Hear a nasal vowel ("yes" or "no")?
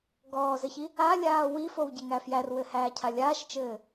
no